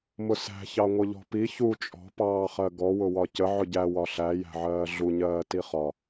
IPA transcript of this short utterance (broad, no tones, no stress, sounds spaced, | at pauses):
m ʊ s æ̤ ç ɑ ŋʷ ʌ ʎ ɔ̤ p i ç u t͡ʃʼ ɔ̤ p ɑː χ ɜ ɡ ɔ w ʊ w ɒ c ə ʕ ʊ ɟ æ w ɒ ɬ æ j æ̤ ʕ ɜː ɮ u ɲ ɜː t i χ ɒ